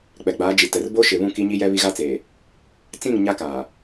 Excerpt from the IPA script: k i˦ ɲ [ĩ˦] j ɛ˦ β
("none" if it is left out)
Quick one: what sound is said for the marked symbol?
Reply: i˦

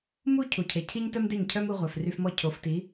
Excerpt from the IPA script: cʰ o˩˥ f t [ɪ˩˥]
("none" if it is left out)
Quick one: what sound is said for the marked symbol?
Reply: i˩˥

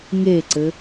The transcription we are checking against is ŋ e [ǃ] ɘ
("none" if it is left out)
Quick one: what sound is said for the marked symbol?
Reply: ǀ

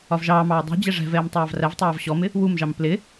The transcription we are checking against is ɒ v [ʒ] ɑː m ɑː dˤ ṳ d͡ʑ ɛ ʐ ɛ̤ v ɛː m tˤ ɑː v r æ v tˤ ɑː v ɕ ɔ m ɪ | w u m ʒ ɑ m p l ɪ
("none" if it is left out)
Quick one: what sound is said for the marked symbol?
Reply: ʒ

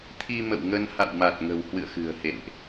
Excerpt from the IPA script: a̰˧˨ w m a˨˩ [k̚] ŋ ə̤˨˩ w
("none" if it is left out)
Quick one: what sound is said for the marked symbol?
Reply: t̚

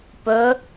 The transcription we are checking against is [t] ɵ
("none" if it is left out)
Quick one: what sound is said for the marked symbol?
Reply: p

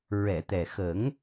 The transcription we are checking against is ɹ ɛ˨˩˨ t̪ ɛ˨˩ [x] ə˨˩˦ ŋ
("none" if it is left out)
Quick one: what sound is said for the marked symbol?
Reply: x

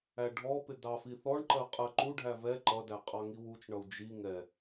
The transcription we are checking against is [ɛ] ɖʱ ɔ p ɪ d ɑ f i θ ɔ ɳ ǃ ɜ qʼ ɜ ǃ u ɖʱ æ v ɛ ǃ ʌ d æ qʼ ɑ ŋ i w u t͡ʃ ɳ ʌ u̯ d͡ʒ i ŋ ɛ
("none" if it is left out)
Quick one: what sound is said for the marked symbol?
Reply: æ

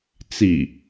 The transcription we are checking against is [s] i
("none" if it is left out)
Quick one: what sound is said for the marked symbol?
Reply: t͡s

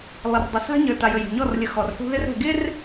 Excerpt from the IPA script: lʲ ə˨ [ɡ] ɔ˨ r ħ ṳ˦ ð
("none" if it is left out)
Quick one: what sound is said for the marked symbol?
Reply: x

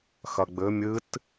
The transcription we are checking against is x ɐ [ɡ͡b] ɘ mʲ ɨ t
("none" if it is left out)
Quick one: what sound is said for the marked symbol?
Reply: ɡ͡b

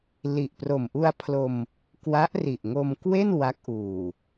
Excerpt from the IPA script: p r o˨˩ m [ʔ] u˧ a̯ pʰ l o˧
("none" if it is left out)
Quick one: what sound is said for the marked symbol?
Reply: ʔ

